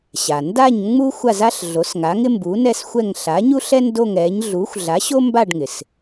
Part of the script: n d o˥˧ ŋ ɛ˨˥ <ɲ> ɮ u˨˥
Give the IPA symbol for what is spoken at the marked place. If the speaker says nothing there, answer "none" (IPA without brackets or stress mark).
ɲ